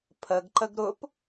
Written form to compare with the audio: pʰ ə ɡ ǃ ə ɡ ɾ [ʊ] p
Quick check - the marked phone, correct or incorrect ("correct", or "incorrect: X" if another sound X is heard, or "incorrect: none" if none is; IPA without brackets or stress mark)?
correct